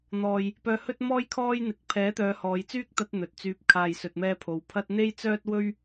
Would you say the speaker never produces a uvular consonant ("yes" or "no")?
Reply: yes